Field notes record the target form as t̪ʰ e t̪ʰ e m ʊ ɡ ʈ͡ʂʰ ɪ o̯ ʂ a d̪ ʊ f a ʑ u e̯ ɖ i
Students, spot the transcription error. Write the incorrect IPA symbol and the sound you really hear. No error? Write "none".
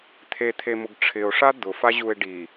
none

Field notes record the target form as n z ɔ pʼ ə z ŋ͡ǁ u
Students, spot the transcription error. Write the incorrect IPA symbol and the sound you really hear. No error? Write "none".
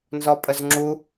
none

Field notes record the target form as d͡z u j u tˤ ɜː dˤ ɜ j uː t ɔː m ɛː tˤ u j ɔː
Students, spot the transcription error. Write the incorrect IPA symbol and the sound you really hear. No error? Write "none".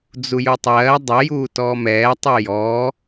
none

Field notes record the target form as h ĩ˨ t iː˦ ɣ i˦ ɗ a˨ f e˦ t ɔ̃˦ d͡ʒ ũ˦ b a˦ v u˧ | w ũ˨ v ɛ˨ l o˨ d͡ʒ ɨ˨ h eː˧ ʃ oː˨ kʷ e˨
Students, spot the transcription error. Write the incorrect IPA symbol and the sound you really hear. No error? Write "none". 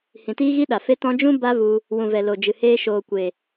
none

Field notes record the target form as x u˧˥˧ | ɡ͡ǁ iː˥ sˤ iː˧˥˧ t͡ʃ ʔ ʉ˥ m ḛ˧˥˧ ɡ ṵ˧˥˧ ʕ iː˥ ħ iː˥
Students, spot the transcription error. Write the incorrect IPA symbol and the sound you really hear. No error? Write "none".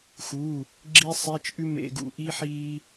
ʕ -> ʔ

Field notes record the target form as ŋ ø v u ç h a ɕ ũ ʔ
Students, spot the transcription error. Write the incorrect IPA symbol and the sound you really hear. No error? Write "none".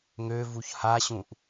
none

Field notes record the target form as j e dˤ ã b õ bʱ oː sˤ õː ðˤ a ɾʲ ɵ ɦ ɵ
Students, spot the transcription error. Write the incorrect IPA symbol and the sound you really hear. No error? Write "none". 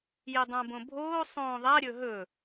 none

